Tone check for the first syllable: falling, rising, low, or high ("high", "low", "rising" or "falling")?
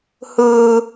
low